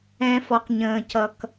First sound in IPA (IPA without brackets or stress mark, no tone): ɛ̃